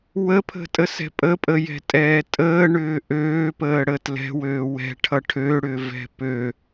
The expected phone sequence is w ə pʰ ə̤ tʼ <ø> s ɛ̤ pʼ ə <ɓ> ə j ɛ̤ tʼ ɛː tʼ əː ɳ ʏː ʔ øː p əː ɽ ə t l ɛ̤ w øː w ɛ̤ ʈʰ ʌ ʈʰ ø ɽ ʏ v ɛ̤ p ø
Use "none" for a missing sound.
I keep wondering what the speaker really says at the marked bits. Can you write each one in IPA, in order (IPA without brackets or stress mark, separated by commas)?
ə, pʼ